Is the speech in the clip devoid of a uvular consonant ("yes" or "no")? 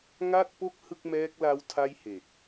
yes